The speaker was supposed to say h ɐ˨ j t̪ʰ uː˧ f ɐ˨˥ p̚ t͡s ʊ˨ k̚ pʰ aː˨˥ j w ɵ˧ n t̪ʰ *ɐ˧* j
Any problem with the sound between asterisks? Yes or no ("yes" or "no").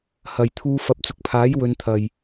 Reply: yes